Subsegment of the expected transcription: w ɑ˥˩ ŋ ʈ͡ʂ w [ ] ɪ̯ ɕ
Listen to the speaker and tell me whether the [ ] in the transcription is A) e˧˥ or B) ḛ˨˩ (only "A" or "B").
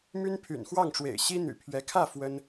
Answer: B